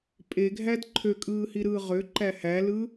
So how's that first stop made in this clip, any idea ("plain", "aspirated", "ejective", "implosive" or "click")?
ejective